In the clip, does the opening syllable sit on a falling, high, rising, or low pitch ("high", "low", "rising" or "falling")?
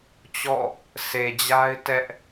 falling